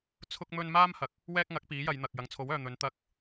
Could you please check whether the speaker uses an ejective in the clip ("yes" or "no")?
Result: no